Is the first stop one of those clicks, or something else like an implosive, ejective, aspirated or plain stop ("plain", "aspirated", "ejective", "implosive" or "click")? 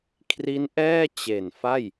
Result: aspirated